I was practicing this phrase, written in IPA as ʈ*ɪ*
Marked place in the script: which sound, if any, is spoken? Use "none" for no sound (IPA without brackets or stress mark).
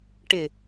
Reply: ɪ